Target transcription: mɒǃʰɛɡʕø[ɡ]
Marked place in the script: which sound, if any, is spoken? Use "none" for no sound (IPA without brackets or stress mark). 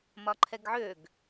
ɡ